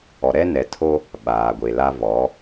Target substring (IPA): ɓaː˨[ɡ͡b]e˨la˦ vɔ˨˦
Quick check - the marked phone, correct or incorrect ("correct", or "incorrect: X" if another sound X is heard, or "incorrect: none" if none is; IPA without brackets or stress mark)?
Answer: incorrect: ɡʷ